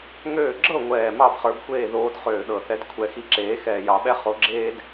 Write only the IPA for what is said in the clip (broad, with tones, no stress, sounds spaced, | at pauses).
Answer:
ŋ øː˥˨ ɡ͡ǁ ɤ˥˨ ŋʷ ɛː˨˩ m ɑ˥˨ b χ ə˞˨˦ b xʷ eː˥˨ ð oː˨˦ d χ øː˨˩ ɗ ɤ˨˩ θ ɛ˨˦ d kʷʰ ɛ˨˩˦ x i˨˦ ǁ eː˨˩˦ x ɛː˨˩ j ɑ˨˩ ɓ ɛ˦ χ o˨˦ ɡ͡ǁ eː˦ d